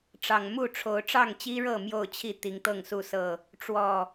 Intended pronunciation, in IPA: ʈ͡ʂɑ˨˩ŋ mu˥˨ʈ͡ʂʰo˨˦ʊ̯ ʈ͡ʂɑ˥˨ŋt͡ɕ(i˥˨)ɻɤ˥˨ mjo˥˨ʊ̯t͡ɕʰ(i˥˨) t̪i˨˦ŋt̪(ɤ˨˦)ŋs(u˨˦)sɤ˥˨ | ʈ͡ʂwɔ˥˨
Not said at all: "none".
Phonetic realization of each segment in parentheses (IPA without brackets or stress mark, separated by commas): i˦, i˥˨, ɤ˥˨, u˥˨